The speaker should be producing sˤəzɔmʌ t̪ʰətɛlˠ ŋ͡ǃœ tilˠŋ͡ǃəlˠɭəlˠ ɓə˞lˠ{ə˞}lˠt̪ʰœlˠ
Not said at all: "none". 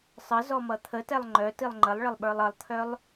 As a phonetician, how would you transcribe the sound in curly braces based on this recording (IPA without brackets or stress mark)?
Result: ʌ